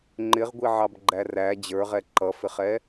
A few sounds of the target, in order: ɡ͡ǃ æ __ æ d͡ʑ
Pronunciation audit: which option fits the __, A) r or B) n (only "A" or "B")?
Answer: A